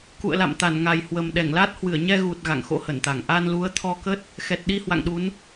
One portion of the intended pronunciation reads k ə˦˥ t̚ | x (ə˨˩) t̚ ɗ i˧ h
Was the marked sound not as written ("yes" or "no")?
yes